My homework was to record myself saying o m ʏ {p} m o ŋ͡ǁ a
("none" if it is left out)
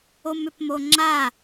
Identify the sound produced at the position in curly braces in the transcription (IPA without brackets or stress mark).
p